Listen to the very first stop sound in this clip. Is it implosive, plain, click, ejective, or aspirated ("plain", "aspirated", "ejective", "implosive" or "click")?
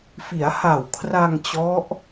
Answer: aspirated